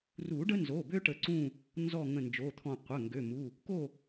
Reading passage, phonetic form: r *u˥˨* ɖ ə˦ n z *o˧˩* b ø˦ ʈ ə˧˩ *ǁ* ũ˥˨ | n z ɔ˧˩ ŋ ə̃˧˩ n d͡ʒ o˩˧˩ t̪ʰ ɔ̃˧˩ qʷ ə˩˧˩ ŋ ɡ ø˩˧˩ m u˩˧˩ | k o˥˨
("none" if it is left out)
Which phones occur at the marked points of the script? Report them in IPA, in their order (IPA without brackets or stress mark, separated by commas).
u˨˩˦, o˩˧˩, ǀ